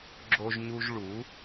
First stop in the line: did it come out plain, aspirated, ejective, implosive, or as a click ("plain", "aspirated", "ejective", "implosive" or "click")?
click